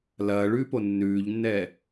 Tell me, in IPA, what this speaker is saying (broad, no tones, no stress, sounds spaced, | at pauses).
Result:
l ɐː ɭ ʉː p o nː ʉː ʎ nː ɛː